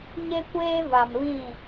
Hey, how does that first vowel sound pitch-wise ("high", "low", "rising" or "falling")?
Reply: high